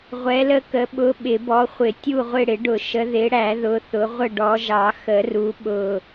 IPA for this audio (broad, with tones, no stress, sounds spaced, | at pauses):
ʁʷ ɛ˨˦ l ə˦˨ k ə˨˦ ɓ ʊ˨˦ ɓ ɪ˨˩˦ b ɔ˨˦ χʷ ɪ˨˩˦ tʲ u˦˨ ʁʷ ɪ˦˨ ɽ ɪ˨˩˦ ɖ ʊ˨˩˦ ʃ ə˨˦ ð ɪ˨˦ ɽ æ˨˩˦ ð ʊ˨˦ θ ʊ˨˦ ʁʷ ə˦˨ ɖ ɔ˨˦ ʒ ɑ˨˩˦ x ə˨˩˦ r u˨˦ ɓ ʊ˦˨